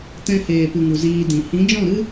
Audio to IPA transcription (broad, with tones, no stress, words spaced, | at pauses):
tɛ̃˧heː˨ pɨ˨ŋu˨ ziː˧dĩ˨ hĩ˨˦d͡ʒɔ̃˦˨ɾɨ˦